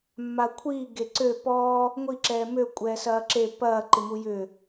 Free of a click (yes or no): no